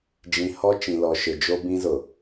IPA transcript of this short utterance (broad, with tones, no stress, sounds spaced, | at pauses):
d͡ʒ ĩ˨ h ɔ˦ t͡ʃ ĩ˨ l ɔ˨ ʃ ɪ˨ d͡ʒ o˦ b ĩ˦ z ʊ˨